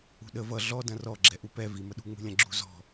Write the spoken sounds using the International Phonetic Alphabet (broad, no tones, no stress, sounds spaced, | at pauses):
ṳ ɗ ə v ʌ ɮ ɔ d ɐ̃ r ɔ ɡ͡ǁ ɛ ʔ u p ɛ v i m ə ɗ ṳ ŋ͡m ṳ lʲ ɐ̃ ɡ͡ǁ ṳ z ɔ̤